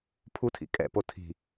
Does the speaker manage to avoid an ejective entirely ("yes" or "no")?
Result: no